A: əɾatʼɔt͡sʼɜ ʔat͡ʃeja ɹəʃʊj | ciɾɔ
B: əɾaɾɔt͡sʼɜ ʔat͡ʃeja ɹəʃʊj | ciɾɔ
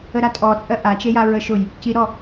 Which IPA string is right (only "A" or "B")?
A